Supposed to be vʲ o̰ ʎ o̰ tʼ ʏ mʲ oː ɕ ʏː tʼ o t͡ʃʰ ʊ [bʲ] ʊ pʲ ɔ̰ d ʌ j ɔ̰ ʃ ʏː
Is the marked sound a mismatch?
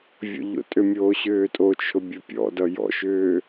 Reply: no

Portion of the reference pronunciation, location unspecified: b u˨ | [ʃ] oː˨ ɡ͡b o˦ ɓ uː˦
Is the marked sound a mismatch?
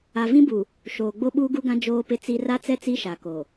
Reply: no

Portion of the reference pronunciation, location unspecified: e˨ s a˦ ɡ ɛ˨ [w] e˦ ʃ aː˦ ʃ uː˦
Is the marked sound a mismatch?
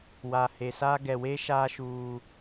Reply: no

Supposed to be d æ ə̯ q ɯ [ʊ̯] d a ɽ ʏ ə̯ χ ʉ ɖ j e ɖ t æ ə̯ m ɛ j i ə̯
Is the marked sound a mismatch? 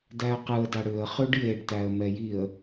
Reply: yes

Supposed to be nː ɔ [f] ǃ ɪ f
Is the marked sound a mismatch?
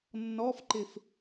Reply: no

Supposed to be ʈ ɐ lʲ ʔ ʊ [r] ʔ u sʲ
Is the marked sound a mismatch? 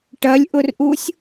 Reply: no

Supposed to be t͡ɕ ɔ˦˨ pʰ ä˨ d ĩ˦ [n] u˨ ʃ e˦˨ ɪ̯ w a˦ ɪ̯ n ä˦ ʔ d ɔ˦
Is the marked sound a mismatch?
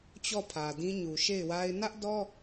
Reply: yes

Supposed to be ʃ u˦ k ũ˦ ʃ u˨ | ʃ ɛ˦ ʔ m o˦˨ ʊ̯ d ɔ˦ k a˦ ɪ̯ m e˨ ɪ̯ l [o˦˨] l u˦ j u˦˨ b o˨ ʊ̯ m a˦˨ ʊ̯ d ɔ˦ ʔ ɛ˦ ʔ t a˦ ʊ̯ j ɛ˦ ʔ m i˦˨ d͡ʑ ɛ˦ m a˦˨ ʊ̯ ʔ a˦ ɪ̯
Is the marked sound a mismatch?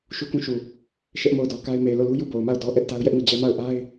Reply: no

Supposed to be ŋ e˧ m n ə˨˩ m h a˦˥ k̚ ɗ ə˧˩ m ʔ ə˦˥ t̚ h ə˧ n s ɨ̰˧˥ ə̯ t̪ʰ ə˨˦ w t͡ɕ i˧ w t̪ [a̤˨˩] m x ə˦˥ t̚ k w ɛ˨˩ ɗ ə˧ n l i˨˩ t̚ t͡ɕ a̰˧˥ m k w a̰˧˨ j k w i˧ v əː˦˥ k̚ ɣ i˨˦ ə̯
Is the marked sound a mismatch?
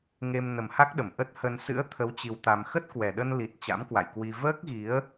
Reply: yes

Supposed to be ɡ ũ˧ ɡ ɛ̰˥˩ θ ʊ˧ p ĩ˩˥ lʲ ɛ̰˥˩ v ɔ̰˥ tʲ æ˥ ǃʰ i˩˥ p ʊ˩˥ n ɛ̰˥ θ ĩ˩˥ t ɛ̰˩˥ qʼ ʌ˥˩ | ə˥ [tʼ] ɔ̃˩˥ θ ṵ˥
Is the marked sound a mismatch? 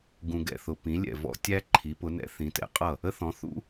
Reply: yes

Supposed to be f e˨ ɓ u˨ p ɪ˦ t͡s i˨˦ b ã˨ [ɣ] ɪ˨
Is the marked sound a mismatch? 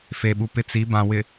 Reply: yes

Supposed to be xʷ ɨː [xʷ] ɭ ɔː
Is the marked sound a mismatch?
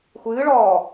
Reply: yes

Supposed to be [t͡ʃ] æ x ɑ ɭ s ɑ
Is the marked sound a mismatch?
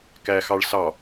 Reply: yes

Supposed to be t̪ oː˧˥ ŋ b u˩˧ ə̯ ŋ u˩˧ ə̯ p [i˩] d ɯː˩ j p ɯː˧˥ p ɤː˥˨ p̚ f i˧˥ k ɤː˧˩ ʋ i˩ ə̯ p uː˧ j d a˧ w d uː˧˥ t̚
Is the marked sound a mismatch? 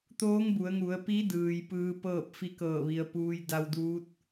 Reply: yes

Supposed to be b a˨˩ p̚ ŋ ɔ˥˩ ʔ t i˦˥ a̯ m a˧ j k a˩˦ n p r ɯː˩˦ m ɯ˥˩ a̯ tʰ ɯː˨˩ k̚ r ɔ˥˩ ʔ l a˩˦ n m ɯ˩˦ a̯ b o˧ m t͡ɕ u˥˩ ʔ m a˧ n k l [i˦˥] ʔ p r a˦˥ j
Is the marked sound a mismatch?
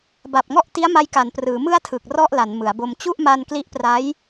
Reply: no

